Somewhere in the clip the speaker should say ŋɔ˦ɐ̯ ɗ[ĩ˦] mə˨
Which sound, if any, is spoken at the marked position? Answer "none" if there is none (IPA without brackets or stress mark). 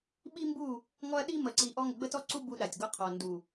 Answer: i˦